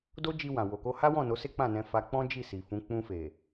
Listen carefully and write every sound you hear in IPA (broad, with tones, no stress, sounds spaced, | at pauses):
d o˦ d͡ʒ i˧ w ã˨ w o˨ k o˧ h a˦ w ɔ̃˦˨ n o˨˦ s e˦ k͡p ã˦˨ n ɛ̃˧ f a˧ k͡p ɔ̃˦ d͡ʒ i˦˨ s i˨ f ũ˨˦ k͡p ũ˧ f e˨